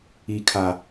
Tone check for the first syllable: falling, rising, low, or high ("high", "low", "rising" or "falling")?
low